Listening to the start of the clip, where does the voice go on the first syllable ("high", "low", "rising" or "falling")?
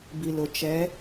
low